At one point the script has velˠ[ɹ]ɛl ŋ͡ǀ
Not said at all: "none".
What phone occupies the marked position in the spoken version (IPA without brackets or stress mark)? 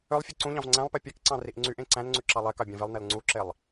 n